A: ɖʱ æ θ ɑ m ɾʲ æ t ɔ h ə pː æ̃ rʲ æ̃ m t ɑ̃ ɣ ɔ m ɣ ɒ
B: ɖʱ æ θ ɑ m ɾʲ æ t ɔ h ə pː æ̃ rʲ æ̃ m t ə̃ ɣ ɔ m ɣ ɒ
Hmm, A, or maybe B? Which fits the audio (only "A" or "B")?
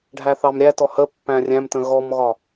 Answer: B